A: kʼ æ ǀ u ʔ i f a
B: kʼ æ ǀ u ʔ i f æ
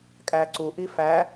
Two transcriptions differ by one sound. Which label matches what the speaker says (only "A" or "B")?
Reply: B